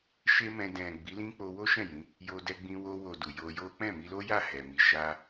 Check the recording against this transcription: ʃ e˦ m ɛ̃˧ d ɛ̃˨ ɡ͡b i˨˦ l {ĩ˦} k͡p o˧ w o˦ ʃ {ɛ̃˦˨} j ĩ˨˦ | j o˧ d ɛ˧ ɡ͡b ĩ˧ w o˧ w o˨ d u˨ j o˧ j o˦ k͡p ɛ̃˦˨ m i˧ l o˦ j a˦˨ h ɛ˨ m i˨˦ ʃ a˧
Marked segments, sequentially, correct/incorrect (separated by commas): correct, correct